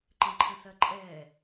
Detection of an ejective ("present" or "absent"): present